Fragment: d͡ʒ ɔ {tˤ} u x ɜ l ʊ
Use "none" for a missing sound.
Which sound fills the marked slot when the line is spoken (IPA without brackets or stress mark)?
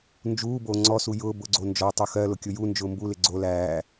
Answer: tˤ